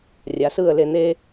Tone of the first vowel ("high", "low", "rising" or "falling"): low